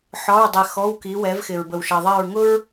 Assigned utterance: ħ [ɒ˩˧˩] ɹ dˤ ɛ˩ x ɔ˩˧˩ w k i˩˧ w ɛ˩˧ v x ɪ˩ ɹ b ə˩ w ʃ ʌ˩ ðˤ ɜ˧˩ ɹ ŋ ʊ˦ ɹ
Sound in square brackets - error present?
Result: no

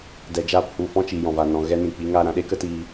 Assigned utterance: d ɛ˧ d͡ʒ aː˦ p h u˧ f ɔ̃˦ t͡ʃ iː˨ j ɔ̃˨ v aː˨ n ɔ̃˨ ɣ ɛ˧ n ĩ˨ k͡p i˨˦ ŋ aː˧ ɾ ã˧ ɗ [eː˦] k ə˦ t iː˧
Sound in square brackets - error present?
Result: no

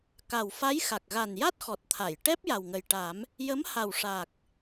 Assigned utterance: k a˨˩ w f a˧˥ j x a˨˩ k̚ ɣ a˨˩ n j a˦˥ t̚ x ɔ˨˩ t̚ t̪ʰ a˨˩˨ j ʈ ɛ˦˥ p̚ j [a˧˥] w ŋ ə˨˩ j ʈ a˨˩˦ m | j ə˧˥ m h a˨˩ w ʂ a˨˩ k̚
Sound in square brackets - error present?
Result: yes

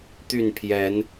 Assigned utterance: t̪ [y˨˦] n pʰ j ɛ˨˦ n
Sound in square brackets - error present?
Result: yes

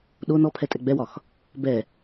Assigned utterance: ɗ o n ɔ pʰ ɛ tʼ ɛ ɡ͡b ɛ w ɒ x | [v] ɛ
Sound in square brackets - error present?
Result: yes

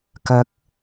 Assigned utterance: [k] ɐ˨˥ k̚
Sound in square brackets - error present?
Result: no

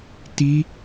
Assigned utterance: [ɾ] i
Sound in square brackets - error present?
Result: yes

